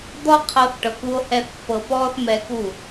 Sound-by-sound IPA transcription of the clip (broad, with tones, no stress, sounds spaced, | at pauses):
d̪ ɔ˧ qʰ ɤ˧ θ ʈ ɤ˨ k u˧ o̯ h ɛ˧ θ pː ɤ˨ p ɔː˧ θ m ɛ˧ k u˦˨